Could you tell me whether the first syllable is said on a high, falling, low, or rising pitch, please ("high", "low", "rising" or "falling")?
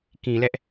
low